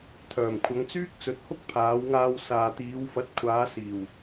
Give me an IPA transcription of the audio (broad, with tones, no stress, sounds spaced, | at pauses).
t̪ʰ œː˨˩ m kʷʰ ɐ˨˧ ŋ t͡s yː˥ k̚ t͡s ɵ˨˥ t̚ h ʊ˥ k̚ pʰ aː˨˧ w ŋ aː˧ w s aː˨ t̪ iː˨˧ w f ɐ˨˥ t̚ kʷʰ aː˨˧ s iː˨˩ w